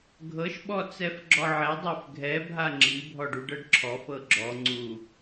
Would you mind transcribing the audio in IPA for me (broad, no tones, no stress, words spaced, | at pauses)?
ɡʱɤʃ ɓɔt͡sɛfɡ͡ǁɔʕɛ dˤufɡʱɛ bʱaŋ͡ǁi bʱɔɖuɖɤɖǁʰɔf ɤɡ͡ǁɔ ŋ͡ǀu